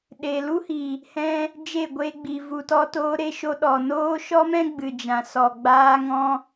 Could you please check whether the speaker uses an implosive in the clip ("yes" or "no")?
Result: yes